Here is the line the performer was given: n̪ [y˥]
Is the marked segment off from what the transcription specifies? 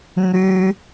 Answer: no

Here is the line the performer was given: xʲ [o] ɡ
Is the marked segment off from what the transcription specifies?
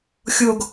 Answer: no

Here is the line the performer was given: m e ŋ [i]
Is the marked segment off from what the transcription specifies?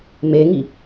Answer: no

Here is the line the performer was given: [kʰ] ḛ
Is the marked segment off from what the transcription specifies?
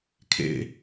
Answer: no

